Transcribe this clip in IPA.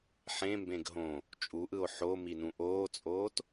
ħ ẽ m b ẽ ɡ ɦ õ | t͡ʃʼ u ʔ ɯ o̯ ħ o m i n ũ ʔ oː t͡sʼ oː t

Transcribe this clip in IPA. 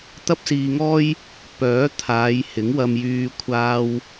t̪ ɐ˥ p̚ s iː˧ ŋ ɔː˥ j | p œː˨˥ t̪ʰ aː˨˧ j h ɪ˨˥ ŋ w ɐ˧ m j yː˧ kʷʰ aː˥ w

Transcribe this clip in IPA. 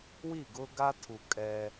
w i˦˨ ɡ ʊ˦ ɡ a˦ tʰ u˨ kʼ ɛ˦

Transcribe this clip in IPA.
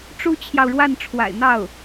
ʈ͡ʂ u˥ t͡ɕʰ j ɑ˨ ʊ̯ ɻ w a˥˩ n ʈ͡ʂʰ w a̰˨˩ ɪ̯ n̪ ɑ˥˩ ʊ̯

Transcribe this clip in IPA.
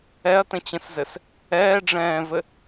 ɛ ɐ̯ t ə̃ t͡ɕ ə̃ s z ɘ s | ɛː ɖ͡ʐ ɛ̃ː v ɘ

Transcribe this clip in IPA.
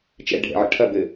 t͡ʃ ɛ̰ ɖʱ ɛ̰ ʕ ə̰ ʈʰ ɐ b ɘ

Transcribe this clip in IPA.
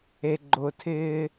e ɡ͡ǃ ʊ tʰ ɪː

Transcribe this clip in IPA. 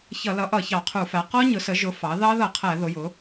ç ʌ˧˩˧ l ʌ˩˥ ʔ ʌ˧˩˧ ç ɑ˧˩˧ qʰ u˧˩˧ f æ˩˥ q ɔ˦˥ ɲ ʊ˩˥ s ə˩˥ ʒ ʊ˩˥ f ɑ˩˥ ð ɑ˦˥ ð ʌ˧˩˧ qʰ æ˧˩˧ ð ʊ˩˥ j ʊ˩˥

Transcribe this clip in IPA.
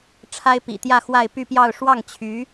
ʈ͡ʂʰ a˥ ɪ̯ p ḭ˨˩ t̪ j ä˥˧ x w a˥˧ ɪ̯ p y˥˧ p j ɑ˥˧ ʊ̯ ʂ w ɑ˥˩ ŋ t͡ɕʰ y˧˥

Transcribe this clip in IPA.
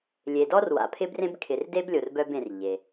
lʲ e˩ d ɔ˧ r w a̰˩ pʰ ɪ˥ b r ẽ˥ b kʰ ɪ˩ r d e˥ b lʲ o˩ r b œ˧ b ẽ˩ r ʎ e˩

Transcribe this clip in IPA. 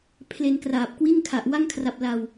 pʰ l e˧ n k r aː˨˩ p̚ k w i˥˩ n kʰ a˨˩ ʔ w a˥˩ ŋ kʰ r a˨˩ p̚ l a˨˩ w

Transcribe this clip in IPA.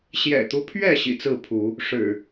ɕ j ɛ̰˨˩ t̪ u˦ pʰ ɥ ɛ˥˨ ɕ ḭ˨˩ t͡s ɹ̩˥˨ pʰ u˨˦ | ʂ ɻ̩˨˩

